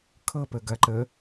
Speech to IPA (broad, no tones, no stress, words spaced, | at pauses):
kʰɤpə ɡɐ ǃə